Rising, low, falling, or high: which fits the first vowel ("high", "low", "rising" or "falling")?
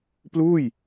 falling